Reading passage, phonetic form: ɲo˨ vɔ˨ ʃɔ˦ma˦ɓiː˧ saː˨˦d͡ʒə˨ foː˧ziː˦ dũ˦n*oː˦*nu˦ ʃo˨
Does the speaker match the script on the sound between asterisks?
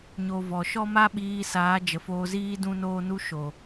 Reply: yes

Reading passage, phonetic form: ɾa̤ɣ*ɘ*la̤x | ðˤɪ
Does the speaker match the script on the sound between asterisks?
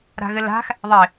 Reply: yes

